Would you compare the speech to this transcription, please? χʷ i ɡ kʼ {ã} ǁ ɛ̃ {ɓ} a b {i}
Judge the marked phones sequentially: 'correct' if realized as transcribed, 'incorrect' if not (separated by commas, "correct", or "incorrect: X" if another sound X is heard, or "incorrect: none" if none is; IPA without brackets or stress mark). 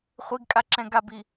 incorrect: a, incorrect: ɡ, correct